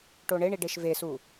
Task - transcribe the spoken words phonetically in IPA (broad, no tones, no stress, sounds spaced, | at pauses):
ʈ o ɳ e ɳ i ɖ e ʃ v e s u